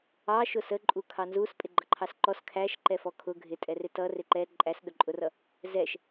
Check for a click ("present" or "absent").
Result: present